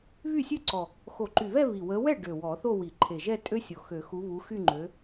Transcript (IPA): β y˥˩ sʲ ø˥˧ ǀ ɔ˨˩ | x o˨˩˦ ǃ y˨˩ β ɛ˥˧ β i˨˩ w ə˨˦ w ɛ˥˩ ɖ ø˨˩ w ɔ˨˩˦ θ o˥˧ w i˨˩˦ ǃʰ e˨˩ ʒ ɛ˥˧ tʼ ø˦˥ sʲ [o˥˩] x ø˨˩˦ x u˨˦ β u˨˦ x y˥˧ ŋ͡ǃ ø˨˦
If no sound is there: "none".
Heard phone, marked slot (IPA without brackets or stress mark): o˨˩